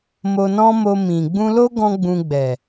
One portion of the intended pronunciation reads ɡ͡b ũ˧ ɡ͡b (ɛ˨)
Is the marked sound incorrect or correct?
correct